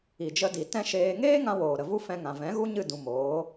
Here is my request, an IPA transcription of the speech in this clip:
i˨ d͡ʒ ə˧ d i˨ t ɛ̃˦ ʃ eː˧ ŋ eː˦ ŋ ã˧ w oː˨ ɾ ə˨ v u˦ f ɛ̃˧ ŋ ã˨ v ɛ̃˨˦ ɣ u˦ ɲ ɨ˦˨ d ũ˨ m oː˨˦

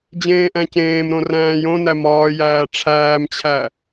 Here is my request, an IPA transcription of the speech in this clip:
d͡ʑ ẽː ʔ æ̃ c ẽː m ɾ õ r æ̃ː j õ n æ m ɒː j æː ʈ͡ʂʰ æː m t͡ɕʰ æ

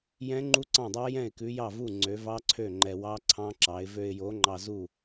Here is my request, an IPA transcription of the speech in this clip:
j ɛ̃˦˥ ŋ͡ǃ u˦˥ ǀ ɑ̃˥˩ dˤ ɑ˦˥ j ɛ̃˥˩ ɪ̯ k ʉ˨˥ j ɑ˥˩ v u˥˩ ŋ͡ǀ ø˨˥ v ɑ˦˥ ǀʰ ø˥˩ ŋ͡ǃ ɛ˧ w ɑ˦˥ ǀʰ ɑ̃˦˥ ǁ ɑ˨˥ ɪ̯ v ø˧ ɪ̯ j o˨˥ ŋ͡ǃ ɑ˧ z u˥˩

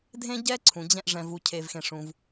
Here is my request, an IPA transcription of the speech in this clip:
dʱ ẽ˥ ɟ ɛ˥ ǀʰ ũ˩ d͡ʑ ɛ̃˥ ʔ ʐ ɛ̃˩ v u˩ cʰ e˩ v x ẽ˩ ʂ ũ˩ v

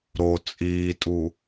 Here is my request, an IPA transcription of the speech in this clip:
ɾ o t͡sʼ iː tʼ u

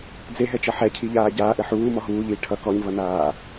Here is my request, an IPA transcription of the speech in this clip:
d͡z e ɦ ɛ t͡ʃ ʌ ħ ɛ cʰ i ʎ aː ɟ aː ʔ ɘ ħ uː m ɔ ɦ uː ʎ iː ʈʰ ʌ k ɔ ɲ v ʌ n aː

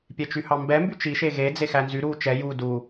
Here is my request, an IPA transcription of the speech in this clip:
pʲ ɛ t͡ʃ y h ɑ m b ɛ m b y t͡ʃ i ʃ e ɣ e d͡z e x æ n z y ɾ uː t͡ʃ ɛ j u d u

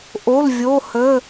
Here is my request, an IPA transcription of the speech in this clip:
ʔ o˩˧˩ l vʲ o˩˧˩ h ə˩˧˩

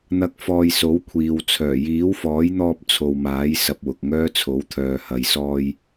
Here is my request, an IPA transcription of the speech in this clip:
n̪ ɐ˨˥ k̚ f ɔː˨ j s o˨˥ w kʷʰ iː˨ w t͡sʰ œː˨˩ j iː˨˥ w f ɔː˨˥ j n̪ ɔː˧ p̚ t͡sʰ o˨ w m aː˨˥ j s ɐ˧ p̚ w ʊ˨ k̚ ŋ œː˥ t͡sʰ o˨˥ w t̪ʰ œː˨ h ɐ˨ j s ɔː˧ j

